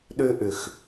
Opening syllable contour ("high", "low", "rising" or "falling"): high